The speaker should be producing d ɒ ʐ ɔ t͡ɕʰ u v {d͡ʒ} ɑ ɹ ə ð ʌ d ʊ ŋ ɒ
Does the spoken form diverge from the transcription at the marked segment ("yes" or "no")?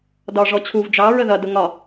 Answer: no